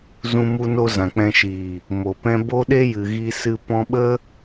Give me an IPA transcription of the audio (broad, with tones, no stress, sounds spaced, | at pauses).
z ũ˧ m u˧ n o˧ z ã˨ k͡p ɛ̃˧ ʃ iː˨ | m o˨ p ɛ̃˦ b o˦ ɗ e˦ j ɨ˨ ɣ i˧ s ɨ˧ p ɔ̃˧ ɓ ə˦